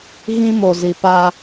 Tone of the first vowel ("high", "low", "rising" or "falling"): high